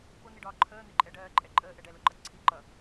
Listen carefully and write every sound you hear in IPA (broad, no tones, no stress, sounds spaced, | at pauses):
p ʊ n̪ i ɖ ɒː ǃʰ əː n̪ ɪ ǃʼ ɛ ɖ ɜː ǃʼ ɛ ǃʼ əː ʔ ɛ ɖ ɛ l ʊ ǃ ʌ ǀʰ i ǃ ʌ